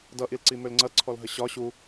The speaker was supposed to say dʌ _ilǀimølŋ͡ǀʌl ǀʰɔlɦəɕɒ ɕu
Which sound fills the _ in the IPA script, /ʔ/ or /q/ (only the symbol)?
ʔ